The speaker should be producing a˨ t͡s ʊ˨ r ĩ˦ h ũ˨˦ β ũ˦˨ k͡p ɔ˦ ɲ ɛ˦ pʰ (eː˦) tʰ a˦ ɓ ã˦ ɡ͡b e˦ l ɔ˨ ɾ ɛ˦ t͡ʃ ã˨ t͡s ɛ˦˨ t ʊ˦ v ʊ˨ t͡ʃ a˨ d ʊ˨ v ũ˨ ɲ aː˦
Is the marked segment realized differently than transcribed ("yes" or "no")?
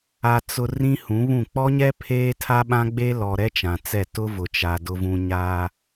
no